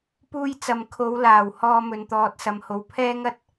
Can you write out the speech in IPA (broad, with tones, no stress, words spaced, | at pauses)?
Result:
puː˧j t͡sɐ˨mkʰo˨˧w laː˨˩w hɔː˧mɵ˨nt̪ɔː˨t̚sɐ˨m ho˨wpʰɛː˥ŋɐ˥t̚